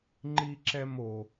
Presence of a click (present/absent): present